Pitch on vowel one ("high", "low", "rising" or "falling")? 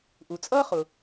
low